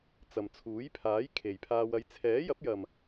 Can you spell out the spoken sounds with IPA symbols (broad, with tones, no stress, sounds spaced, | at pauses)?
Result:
t͡s ɐ˨ m t͡sʰ uː˨˥ j pʰ aː˨˥ j kʰ e˨ j pʰ aː˧ w ɐ˨˧ j t͡sʰ ɛː˨˥ j ɐ˨˥ p̚ j ɐ˨ m